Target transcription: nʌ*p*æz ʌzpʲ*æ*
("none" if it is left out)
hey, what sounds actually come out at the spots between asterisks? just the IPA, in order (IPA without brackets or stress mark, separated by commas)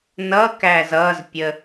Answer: k, ə